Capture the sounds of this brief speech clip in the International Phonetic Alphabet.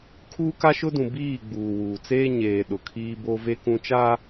kʰuː˦ka˦ʃʊ˦dũ˨ biː˦˨ɡ͡buː˨wuː˨t͡seː˦ ɲeː˨ ɗʊ˨kʰiː˦ bo˦ve˦kũ˦ t͡ʃa˦

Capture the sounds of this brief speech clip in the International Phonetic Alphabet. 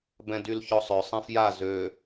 bɛ̃dylçɔsˤœ sˤɛ̃fja zø

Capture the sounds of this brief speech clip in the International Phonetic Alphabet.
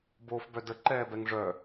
boːfbœdə ǃɛːbɛŋʐœ

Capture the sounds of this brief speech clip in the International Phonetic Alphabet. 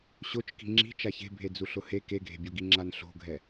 ɕot͡ʃ ki̤ŋ͡ǁi̤ t͡ʃaçe̤bʱe d͡zuɬʊhe keɡʱe̤bʲoɡi ŋ͡ǁanɬo̤ɡʱɛ

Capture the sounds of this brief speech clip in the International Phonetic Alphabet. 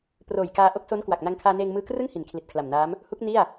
proː˨˩jkaː˧ ʔo˦˥k̚so˦˥n kwa˨˩k̚ na˧ŋkʰaː˧ neː˧ŋmɯː˧krɯ˥˩ŋ hi˨˩nkʰli˨˩t̚kʰla˨˩mnaː˦˥m | hu˦˥k̚ ni˥˩a̯

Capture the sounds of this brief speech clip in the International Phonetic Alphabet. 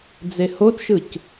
d͡zehotʃɯc

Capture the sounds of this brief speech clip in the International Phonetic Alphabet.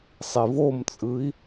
sˤivomt͡sʼɯi̯

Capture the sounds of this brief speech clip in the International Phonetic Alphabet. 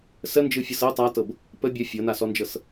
sənd͡ʒɯfʲɤs ɤ tˤatɤb | pə bʲə fʲɤnasɔnd͡ʒɤs

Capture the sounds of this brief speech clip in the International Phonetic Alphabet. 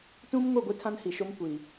tũ˦m ŋo˦˨ɡʷi˦tʰã˦n hi˨ʃo˦mkʷi˨

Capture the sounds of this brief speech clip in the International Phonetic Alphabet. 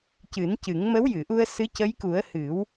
cɨ˨˩˦ncɨ˨˩˦ŋ mə˧˥wjɨ˨˩˨ʔu˧ə̯sɨ˧˥ cə˧˥jku˨˩˦ə̯ hɨ˨˩˦w

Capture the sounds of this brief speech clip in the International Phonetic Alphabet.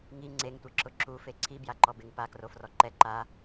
ŋi ŋ͡ǀeŋtʷeǁʊ ǁufe ǀʰibja ǃɔbɪŋ pakrofrɔ ǃɛ ǃa

